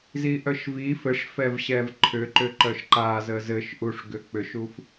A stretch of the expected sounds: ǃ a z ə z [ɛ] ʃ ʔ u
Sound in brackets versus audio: incorrect: ɘ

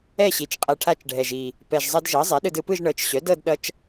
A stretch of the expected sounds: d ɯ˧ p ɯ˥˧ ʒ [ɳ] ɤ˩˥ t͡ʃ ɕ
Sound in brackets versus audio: correct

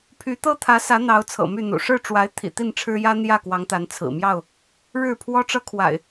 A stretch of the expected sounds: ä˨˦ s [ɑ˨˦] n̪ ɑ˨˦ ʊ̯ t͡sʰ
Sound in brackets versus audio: incorrect: ä˨˦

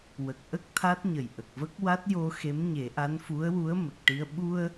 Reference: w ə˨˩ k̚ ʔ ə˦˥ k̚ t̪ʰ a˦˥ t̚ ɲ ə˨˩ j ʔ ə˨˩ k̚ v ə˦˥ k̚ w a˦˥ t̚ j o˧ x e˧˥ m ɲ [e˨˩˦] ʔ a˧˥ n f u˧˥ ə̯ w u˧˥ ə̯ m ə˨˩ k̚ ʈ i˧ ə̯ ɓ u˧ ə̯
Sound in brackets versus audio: correct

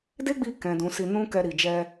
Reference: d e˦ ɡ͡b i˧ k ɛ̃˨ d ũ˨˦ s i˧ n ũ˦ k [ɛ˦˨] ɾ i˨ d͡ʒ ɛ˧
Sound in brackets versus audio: incorrect: ɛ˧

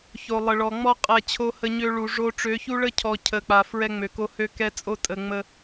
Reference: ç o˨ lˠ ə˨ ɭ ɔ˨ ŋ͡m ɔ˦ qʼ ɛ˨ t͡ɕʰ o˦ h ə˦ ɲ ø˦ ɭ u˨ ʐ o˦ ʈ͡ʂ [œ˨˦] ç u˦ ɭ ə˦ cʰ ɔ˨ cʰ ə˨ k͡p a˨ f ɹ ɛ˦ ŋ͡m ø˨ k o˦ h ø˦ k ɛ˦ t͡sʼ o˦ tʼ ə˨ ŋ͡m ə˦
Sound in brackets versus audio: incorrect: ø˨˦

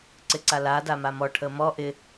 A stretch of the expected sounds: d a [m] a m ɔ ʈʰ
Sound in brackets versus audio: correct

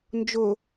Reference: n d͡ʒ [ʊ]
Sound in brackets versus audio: correct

